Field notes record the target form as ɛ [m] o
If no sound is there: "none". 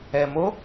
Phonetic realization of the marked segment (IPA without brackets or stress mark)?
m